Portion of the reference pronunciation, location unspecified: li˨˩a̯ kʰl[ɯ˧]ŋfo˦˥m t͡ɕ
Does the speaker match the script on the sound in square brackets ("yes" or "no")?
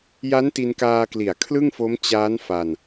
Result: no